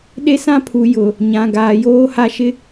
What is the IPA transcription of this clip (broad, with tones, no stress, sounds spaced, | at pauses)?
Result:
ɗ e˦ s ã˦ pʰ u˨ j ʊ˨ | ɲ ã˨ ɡ aː˨ j oː˦ h a˦ ʃ ɪ˦